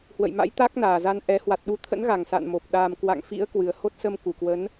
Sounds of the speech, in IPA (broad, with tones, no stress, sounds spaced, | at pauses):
h w ə̰˧˨ j m a̰˧˥ j t̪ a˦˥ k̚ n aː˨˩ z a˧ n ʔ ɛ˨˦ h w a˨˩ t̚ ɗ u˨˦ t̪ʰ ə̰˧˥ n ɣ a˨˩ ŋ s a̰ː˧˨ n m o˨˩ p̚ ɗ aː˨˩ m k w a̰˧˨ ŋ f ḭ˧˥ ə̯ k w ɨ˨˩ ə̯ h o˦˥ t̚ s ə˧ m k u˧˩ k w ə˨˦ n